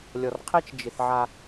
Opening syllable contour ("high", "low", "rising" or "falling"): low